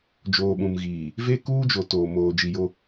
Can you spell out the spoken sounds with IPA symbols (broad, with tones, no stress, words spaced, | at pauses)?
d͡ʒoː˨ɓũ˨mɣiː˨ | ve˦ kuː˦ d͡ʒo˨ toː˨moː˨ d͡ʒi˨jo˦